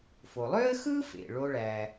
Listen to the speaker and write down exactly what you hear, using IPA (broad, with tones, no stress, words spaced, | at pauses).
fo˩lˠø˥ə̯ xɯ˥fḛ˩ ɭo˦ɭæ˨